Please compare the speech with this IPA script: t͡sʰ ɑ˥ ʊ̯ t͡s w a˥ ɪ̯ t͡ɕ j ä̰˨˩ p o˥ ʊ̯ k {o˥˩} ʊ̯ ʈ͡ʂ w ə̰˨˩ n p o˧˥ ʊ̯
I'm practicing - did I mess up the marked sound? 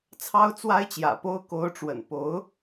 yes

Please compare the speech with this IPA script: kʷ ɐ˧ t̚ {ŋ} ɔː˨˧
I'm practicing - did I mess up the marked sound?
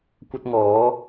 no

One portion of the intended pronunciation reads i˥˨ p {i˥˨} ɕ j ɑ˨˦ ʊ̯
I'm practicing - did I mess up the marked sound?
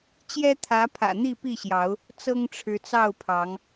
no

